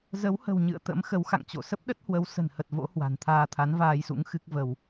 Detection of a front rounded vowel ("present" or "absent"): absent